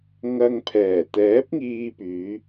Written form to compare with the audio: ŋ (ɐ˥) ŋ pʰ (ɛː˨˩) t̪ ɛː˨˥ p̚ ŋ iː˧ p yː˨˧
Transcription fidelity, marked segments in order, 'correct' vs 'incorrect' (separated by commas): incorrect, correct